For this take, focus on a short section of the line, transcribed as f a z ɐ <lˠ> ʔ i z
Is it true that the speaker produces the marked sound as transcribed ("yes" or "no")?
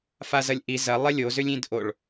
no